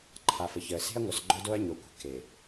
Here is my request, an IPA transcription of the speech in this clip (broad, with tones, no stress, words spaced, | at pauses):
ǃʰa˨fə˨çəː˨ se̤˦ɐ̯ŋʷœ˨s ɡ͡ǃœ˦do˦ɐ̯ɲo˨kʷə̤˨ ke˨